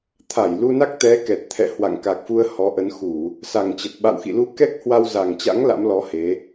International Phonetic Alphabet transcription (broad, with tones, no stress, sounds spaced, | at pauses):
t̪ʰ a˧˩ j l u˧ n a˦˥ k̚ t̪ ɛ˨˦ k ɛ˨˩ t̚ t̪ʰ ɛ̰˧˨ h w a̰˧˨ ŋ k a˨˩ k̚ f u˧ ə̯ h ɔ˨˦ ʔ ə˨˦ n x u˧˩˨ | s a˨˩ ŋ t͡ɕ ə˨˩ t̚ ɓ a̰˧˨ w x ḭ˧˨ l u˧ k ɛ˦˥ k̚ h w a˧ w z a˨˩ ŋ t͡ɕ a̰˧˥ ŋ l a̰˧˥ m l ɔ˨˦ h e˨˦